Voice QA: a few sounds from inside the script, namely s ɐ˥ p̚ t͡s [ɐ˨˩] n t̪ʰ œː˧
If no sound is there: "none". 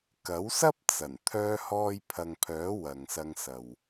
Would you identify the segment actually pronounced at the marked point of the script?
ɐ˨˩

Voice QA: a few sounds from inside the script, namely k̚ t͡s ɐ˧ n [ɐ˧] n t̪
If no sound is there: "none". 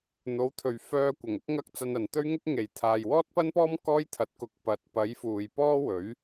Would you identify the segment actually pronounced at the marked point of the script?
ɐ˨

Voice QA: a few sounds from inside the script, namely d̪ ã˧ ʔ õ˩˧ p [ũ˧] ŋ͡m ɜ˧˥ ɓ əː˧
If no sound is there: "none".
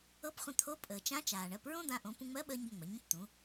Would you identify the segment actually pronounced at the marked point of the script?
ũ˧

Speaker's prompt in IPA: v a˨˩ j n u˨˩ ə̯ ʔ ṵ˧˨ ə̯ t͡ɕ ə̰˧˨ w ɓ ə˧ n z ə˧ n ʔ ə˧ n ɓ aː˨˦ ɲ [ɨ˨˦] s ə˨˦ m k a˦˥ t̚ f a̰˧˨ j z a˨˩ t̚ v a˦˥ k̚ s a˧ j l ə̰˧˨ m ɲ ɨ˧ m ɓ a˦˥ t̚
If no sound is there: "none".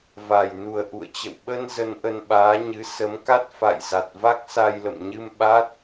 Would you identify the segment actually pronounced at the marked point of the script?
ɨ˨˦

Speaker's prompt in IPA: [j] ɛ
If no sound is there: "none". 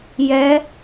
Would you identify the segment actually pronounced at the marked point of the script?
j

